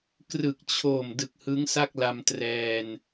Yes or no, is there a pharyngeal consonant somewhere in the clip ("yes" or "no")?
no